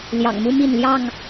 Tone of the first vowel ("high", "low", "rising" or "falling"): low